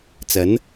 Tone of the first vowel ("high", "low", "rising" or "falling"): rising